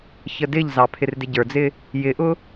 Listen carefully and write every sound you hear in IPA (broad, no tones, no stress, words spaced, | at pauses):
çədɪʎzɑ pʰɪrdɪɟə˞d͡zɪ | jɪʔʊ